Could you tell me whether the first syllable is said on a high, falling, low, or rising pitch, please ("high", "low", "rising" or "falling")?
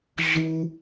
high